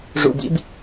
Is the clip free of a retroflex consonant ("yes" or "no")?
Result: no